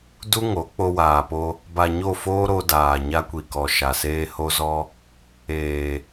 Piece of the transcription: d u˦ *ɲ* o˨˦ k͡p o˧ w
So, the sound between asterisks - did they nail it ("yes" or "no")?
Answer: no